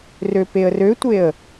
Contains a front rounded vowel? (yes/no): yes